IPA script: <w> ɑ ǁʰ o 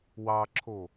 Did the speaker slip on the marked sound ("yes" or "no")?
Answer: no